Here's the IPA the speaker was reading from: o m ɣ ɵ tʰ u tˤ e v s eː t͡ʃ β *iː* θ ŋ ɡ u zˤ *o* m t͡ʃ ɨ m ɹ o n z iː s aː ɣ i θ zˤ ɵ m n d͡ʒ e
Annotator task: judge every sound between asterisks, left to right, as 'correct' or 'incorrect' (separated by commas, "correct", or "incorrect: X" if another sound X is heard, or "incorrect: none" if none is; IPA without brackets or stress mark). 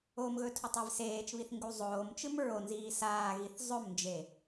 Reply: incorrect: i, incorrect: oː